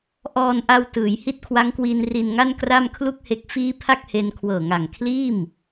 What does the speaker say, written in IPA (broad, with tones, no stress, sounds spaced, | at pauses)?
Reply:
ʔ ɔː˧ n ʔ a˧ w t ɯː˩˦ j h i˦˥ t̚ kʰ w a˦˥ ŋ k w iː˧ n r i˧ n ŋ a˥˩ n k r a˥˩ m kʰ l u˥˩ k̚ h e˦˥ k̚ f iː˦˥ pʰ a˥˩ k̚ h e˧ n kʰ w ɤː˨˩ ŋ a˨˩ ŋ kʰ l iː˥˩ m